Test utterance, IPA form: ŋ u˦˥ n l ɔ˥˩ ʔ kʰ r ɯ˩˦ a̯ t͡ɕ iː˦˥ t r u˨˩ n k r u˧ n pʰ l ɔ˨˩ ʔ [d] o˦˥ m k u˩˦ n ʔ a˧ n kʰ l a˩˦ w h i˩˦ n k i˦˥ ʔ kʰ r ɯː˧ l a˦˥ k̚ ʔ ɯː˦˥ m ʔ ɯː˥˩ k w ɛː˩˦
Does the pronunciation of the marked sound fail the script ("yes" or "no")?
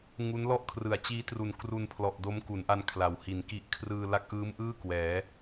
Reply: no